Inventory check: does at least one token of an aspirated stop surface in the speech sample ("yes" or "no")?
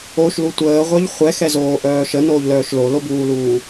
no